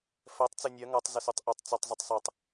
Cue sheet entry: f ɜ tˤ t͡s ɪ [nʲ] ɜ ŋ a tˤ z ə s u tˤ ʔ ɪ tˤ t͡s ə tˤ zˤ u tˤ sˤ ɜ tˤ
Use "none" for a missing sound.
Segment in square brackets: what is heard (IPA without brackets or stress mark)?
nʲ